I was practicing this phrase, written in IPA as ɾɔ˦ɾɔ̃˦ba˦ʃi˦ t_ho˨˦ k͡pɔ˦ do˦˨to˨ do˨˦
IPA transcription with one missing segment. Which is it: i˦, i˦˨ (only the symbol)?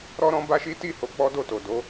i˦˨